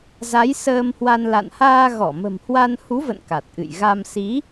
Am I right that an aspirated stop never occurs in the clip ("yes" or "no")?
yes